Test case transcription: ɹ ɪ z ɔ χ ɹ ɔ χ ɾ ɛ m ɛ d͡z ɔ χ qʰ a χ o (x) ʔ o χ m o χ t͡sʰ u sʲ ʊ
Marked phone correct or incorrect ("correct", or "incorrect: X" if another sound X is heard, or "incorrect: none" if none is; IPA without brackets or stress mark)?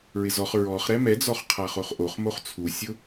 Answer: incorrect: χ